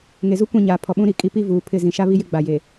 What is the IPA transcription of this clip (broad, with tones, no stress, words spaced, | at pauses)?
ŋe˨zu˦ kʷĩ˦˨ ɲaː˨pʰɔ˨ɓũ˦ɾi˨ kʼi˨ pi˦ vuː˨pʰɪ˦˨ zĩ˨ʃa˦βi˦jɪ˦ ɡ͡ba˨je˨